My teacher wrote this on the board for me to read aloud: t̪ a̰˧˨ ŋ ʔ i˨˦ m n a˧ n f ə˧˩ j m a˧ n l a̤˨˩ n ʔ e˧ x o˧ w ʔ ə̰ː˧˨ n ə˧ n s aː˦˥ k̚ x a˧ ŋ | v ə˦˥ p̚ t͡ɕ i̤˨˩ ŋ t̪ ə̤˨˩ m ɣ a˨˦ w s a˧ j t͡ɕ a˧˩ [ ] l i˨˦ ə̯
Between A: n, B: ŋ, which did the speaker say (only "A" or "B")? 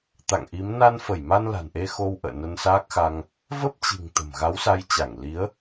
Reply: B